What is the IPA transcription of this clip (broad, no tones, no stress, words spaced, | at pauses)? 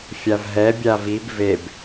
fʲavɦɛ bʲavib veb